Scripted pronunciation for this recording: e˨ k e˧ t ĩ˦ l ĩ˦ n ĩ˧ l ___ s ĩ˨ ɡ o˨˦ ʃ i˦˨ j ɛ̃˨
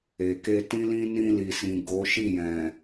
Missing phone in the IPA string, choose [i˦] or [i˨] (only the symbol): i˨